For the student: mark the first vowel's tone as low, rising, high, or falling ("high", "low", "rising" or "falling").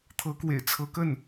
rising